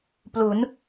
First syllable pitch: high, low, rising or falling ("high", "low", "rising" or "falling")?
rising